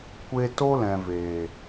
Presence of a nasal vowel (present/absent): present